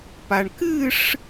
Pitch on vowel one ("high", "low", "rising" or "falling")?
low